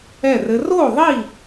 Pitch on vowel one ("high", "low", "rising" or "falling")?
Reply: falling